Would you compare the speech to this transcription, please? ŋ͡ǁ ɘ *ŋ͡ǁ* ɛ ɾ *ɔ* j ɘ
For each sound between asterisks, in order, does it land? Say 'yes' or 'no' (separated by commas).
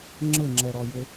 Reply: yes, yes